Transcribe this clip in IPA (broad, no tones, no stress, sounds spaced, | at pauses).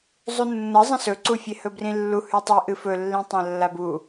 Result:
zˤ u nː ɐ zˤ ɐ̃ s ɵ ǀ u fʲ e h ɵ b r ĩ lː u h ʉ tˤ i ʔ ɨ f ɵ lː ĩ tˤ ã lː a b u